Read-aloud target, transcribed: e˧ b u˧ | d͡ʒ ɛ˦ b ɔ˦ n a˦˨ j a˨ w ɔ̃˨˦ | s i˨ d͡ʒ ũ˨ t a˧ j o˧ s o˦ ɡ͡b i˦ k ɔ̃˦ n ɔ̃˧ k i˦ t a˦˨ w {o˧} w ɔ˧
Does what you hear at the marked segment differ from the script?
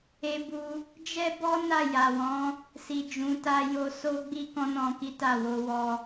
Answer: no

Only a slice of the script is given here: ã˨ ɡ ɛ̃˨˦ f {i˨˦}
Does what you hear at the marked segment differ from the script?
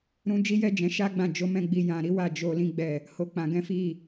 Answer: yes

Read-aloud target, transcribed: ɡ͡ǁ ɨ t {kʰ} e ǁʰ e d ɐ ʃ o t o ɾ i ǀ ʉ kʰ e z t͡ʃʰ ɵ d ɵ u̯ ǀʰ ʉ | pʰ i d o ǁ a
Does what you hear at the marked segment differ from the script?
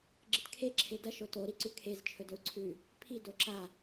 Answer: no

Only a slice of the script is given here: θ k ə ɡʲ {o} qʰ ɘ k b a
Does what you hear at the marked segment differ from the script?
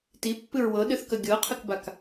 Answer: yes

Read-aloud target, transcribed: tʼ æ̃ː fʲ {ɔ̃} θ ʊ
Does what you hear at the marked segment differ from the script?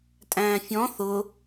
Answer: no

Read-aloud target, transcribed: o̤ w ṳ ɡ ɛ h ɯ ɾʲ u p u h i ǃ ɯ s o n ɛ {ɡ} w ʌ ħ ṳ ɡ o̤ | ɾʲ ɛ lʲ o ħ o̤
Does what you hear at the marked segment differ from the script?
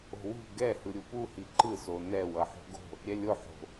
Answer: yes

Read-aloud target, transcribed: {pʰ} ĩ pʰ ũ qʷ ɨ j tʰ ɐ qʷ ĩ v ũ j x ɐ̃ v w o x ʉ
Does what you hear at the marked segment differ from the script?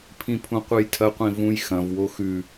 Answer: no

